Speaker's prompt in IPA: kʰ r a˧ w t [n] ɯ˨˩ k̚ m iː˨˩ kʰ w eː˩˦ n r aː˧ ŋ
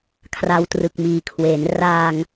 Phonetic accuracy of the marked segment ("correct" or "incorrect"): incorrect